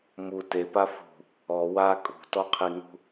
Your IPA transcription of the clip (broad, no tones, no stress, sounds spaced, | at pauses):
m u t e p a f ṳ | ɔ w a kʼ ṳ t ɔ qʰ i ŋ ṳ